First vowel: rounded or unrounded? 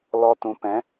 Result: rounded